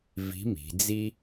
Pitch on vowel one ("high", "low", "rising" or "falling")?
rising